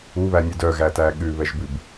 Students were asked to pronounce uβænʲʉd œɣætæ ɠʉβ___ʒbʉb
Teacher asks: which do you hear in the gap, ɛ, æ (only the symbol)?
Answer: ɛ